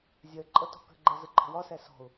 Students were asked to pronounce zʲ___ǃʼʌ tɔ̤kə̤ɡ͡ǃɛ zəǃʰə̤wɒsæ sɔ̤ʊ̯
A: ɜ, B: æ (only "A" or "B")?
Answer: A